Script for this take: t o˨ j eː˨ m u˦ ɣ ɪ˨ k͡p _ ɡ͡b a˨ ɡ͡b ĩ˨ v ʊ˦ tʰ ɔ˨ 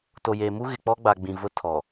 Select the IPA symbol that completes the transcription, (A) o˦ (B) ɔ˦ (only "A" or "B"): B